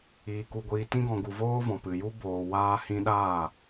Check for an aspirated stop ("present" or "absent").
absent